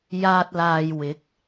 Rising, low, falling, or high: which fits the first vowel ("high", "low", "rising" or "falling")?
low